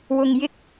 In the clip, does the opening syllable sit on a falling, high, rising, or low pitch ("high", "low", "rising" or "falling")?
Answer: low